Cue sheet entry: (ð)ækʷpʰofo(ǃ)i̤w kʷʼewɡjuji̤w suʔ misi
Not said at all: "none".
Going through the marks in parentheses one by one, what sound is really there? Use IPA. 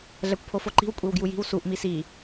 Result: ɮ, ǃ

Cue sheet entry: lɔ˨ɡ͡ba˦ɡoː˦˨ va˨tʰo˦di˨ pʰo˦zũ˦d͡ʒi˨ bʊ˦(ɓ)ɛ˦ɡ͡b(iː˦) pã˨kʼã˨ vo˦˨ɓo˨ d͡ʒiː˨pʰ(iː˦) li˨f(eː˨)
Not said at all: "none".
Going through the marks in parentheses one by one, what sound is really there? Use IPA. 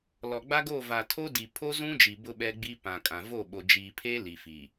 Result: ɓ, i˦, eː˦, iː˨

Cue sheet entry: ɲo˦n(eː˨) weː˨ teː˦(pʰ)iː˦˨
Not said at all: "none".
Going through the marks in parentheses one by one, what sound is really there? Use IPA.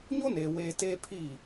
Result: eː˨, pʰ

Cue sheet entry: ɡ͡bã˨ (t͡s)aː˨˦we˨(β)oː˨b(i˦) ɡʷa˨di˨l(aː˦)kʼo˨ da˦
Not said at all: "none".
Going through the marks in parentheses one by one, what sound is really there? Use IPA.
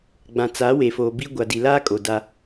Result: t͡s, f, i˦, aː˦

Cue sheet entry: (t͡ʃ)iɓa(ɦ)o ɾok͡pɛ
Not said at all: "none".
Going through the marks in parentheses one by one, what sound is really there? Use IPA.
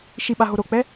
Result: ʃ, ɦ

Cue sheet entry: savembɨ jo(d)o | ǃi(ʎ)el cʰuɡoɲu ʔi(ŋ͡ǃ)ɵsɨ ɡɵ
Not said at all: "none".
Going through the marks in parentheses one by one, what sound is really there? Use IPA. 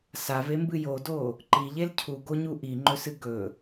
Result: d, ʎ, ŋ͡ǃ

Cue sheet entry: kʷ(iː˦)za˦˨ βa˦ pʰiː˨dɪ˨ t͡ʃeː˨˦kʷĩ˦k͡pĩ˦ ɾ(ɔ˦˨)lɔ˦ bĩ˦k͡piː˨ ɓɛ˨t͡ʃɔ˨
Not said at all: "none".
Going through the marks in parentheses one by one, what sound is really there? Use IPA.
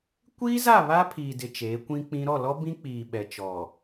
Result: iː˦, ɔ˦˨

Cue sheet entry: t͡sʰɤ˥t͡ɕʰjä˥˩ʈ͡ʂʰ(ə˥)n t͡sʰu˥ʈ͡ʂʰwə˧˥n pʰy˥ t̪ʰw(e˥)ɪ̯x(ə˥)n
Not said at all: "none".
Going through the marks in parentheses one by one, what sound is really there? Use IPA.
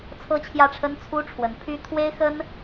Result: ə˥, e˥, ə˥

